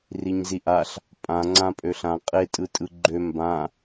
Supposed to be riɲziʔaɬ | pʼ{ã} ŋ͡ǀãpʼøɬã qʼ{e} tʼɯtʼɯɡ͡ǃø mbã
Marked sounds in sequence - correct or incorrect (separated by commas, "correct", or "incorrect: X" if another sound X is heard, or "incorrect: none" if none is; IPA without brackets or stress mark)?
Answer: correct, correct